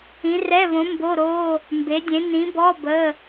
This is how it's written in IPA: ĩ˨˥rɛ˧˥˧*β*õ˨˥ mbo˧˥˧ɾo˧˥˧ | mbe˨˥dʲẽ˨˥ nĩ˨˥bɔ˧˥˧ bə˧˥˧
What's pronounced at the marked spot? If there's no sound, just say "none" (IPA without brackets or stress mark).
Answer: β